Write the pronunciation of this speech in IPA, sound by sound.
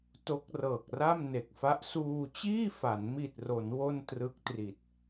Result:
t o˦˥ k̚ r ɤː˨˩ k̚ r a˥˩ m n e˨˩ k̚ f a˦˥ ʔ s uː˧ t͡ɕ iː˥˩ f a˩˦ n m i˨˩ t̚ r o˩˦ n w o˥˩ n t r ɯ˦˥ k̚ t r i˨˩ t̚

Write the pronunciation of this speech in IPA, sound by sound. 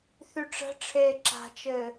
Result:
θ y ʈ͡ʂ ə̤ ʈ͡ʂʰ eː ǁ a̤ t͡ʃ ɘː

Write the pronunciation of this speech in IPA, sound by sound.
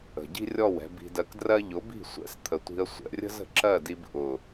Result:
ə̤˨ ɟ i̤˦ rʲ ɔ˦˨ w ɛ̤˧ b i̤˧ d ɜ˧ k d r ɜ˦ ʎ ʊ˨˦ b i̤˦˨ sʷ ɛ̰˦ s t̪ʰ ə˨ tʷ i̤˧ ə̯ sʷ ɛ̰˨ rʲ ə̤˦ z ə̤˨ ǁ ɜ˦˨ d i˧ b ʔ ʊ˨

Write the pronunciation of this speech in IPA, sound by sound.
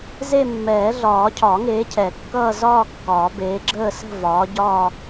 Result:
z e˥˧ mː ɛː˨˩˦ ɮ ɒː˨˩˦ cʰ ɒ˨˩˦ ŋ eː˨˦ cʰ ɛ˨˩˦ kː ʌː˥˧ z ɒː˥˧ kː ɒː˨˩˦ b eː˨˦ ɡ͡ǁ əː˥˧ s ə̤˥˧ v ɒː˨˦ ɟ ɒː˥˧

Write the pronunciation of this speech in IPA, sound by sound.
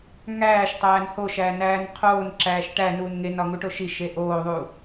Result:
ŋ æː ʃ tˤ æː n h o ʃ æ n æː n qʰ oː n ǁ æː ʃ ʈ æ n uː n ŋ e n ɒ ŋ u ʈ o ʃ i ʃ e ʔ oː ðˤ uː

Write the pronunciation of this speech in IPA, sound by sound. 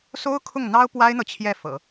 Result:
s o˥ ʊ̯ kʰ ʊ˥˩ ŋ n̪ ɑ˥ ʊ̯ p w a˥ ɪ̯ n̪ ɤ˨ t͡ɕʰ j ɛ˥˩ f ɤ̰˨˩˦

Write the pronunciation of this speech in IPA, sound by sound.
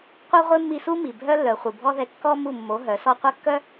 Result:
qʷ ɛ˦ ʁʷ e˦ mː i˧ s u˦ m i˨ bʱ œ˦ lː œ˨ χʷ i˨ bʱ ɔ˦ ð ɛ˧ kː ɔ˦ m u˦˨ mː o˨˦ ɦ œ˨˦ s ɔ˧ qʷ a˦ kː œ˦

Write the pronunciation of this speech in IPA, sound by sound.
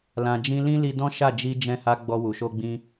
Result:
l ã˨ d͡ʒ ĩ˧ l ĩ˦ l i˧ d ɔ̃˦ ʃ a˦˨ d͡ʒ i˧ d͡ʒ ɛ̃˧ h a˧ ɡ͡b ɔ˧ w u˨ ʃ o˧ ɡ͡b ĩ˧

